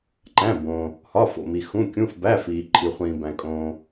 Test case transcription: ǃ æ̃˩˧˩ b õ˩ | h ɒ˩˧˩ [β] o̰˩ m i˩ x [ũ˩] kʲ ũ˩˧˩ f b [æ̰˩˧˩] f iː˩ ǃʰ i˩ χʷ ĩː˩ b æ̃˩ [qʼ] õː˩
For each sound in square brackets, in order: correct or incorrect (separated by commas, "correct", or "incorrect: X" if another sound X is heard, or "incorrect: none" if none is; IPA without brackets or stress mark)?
incorrect: f, incorrect: ũ˩˧˩, incorrect: æ˩˧˩, incorrect: kʼ